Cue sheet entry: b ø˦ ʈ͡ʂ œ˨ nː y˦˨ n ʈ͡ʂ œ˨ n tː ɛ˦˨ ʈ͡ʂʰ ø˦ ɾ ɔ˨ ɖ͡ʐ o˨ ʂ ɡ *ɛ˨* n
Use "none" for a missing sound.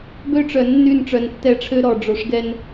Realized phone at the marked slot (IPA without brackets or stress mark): ɛ˦